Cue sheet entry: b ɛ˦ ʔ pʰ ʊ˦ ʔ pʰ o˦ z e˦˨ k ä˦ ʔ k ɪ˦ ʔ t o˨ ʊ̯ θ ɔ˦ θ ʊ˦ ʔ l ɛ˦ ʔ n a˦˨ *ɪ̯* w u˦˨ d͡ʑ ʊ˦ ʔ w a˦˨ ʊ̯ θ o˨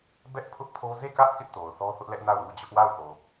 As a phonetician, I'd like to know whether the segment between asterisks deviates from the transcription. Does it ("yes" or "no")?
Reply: yes